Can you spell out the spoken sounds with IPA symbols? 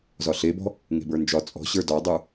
z ɒ ɬ e b ɔ̤ | ŋ e̤ b ə˞ n d͡ʒ ɒ t͡sʼ ɔ̤ ɕ ə˞ d ɒ dˤ ə˞

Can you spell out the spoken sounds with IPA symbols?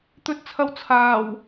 t̪ ɵ˧ t̚ t͡sʰ ɐ˧ w t͡sʰ aː˨˩ w

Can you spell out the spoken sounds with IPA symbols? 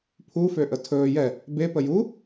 pʰ u f ø ʔ ə tʰ ɵː j ɛ | b e p ə j u

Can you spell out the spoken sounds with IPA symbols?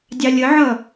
dʲ ɑ lʲ ə ʕ ʌ

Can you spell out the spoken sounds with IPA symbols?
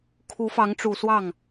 kʰ u˧˥ f ɑ˧˥ ŋ ʈ͡ʂ u˨˩ s w ɑ˥˩ ŋ

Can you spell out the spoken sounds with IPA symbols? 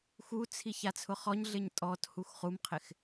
x u t͡sʰ i ç a t͡sʰ ʊ χ ɔ ɲ ɮ ɪ ɲ tʼ ɔ t h u x χ u m qʰ ɪ x

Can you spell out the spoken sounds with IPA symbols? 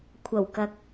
kʷʰ ɐ˨˩ w k ɐ˨ k̚

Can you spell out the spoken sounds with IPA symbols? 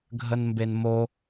ɡʱ ə n m b e n m o

